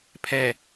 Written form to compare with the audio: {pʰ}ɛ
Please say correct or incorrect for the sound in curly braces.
correct